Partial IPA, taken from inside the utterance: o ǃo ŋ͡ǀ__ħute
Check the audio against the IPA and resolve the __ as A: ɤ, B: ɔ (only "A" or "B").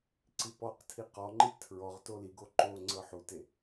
A